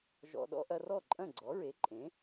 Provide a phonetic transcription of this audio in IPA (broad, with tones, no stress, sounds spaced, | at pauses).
ʒ ɔ̰˧ ɗ ɔ̰˥ ʔ ɐ˧ r ɔ˥˩ ǃʼ ɐ̃˥˩ ɡ͡ǀ ɔ˩˥ ɹ e˩˥ ǃʼ ẽ˩˥